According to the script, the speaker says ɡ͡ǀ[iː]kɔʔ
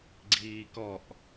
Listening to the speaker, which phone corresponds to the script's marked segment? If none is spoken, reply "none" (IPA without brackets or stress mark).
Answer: iː